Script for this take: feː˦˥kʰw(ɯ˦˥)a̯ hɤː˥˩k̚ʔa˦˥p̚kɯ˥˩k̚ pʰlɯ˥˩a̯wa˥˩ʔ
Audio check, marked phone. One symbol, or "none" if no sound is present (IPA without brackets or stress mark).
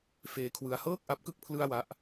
ɯ˦˥